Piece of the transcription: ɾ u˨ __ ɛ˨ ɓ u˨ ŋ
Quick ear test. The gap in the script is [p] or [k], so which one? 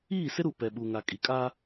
p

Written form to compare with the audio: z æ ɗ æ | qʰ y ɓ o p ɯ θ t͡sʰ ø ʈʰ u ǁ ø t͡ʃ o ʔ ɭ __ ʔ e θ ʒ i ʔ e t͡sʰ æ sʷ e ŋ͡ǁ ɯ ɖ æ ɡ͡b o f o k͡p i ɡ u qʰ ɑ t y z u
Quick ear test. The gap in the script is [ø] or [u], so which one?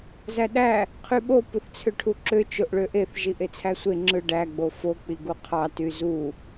ø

